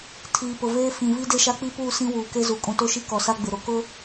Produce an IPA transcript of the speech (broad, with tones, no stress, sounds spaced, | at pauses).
tʰ iː˨ p ʊ˨ v eː˦ f ĩ˨ v i˦ d e˦ ʃ a˦ k͡p i˦ p uː˦˨ s ĩ˦ w uː˨ k e˦ z u˨ kʼ ũ˨ t o˦ ʃ i˦ k ɔ˨ s a˦ ɡ͡b ɪ˨ ɾ o˨ k ʊ˦